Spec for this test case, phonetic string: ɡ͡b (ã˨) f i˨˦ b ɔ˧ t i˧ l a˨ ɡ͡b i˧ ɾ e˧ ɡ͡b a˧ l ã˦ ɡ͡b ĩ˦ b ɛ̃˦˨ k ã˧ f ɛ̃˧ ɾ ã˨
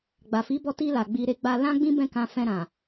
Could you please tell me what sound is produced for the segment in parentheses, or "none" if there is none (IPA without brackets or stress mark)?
a˨